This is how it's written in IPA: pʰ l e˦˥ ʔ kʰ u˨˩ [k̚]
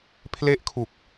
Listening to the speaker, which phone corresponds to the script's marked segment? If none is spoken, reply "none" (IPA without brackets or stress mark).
k̚